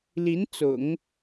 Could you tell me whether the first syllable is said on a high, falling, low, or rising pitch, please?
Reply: rising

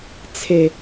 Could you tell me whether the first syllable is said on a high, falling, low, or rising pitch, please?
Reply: high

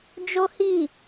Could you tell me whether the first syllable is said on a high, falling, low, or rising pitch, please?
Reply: high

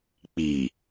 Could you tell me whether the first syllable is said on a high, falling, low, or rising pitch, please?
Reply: low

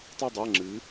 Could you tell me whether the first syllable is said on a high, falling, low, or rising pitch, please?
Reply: falling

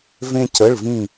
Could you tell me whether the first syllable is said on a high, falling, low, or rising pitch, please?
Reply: high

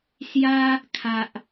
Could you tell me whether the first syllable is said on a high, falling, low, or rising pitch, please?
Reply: high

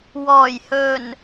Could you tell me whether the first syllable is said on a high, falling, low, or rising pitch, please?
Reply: low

